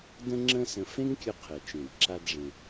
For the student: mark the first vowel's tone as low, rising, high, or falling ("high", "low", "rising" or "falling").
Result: high